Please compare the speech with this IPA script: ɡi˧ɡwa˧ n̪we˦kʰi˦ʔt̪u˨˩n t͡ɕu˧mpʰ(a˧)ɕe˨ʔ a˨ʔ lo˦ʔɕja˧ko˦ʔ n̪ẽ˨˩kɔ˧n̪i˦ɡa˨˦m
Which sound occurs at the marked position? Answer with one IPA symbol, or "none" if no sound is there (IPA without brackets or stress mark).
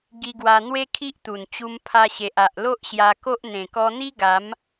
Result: a˧